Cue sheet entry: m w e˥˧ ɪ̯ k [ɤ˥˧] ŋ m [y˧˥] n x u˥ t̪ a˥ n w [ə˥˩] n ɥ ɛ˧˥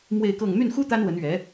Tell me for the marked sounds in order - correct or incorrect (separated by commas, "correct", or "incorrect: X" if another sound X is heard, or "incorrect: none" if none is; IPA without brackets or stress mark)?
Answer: correct, incorrect: y˥˩, incorrect: ə˧˥